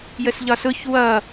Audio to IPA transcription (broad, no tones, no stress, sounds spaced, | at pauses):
j ə s ʎ ɒ s ʊ ç w ʌ